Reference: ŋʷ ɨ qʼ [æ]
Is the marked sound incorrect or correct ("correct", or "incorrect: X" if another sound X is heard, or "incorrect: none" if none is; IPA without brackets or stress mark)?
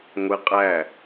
correct